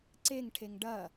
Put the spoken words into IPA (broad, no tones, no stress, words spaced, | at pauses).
ǀeŋʈʰeŋ ɖɐ